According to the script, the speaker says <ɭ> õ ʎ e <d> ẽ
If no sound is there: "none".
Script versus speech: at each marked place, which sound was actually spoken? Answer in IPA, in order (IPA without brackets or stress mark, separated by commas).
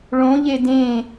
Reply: ɭ, d